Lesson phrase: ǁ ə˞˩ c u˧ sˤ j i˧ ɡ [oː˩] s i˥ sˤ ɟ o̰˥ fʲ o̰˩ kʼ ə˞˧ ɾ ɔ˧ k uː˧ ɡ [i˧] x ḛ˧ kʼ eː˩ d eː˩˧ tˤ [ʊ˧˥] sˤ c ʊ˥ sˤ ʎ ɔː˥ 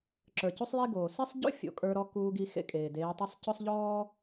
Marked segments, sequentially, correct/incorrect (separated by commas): correct, correct, incorrect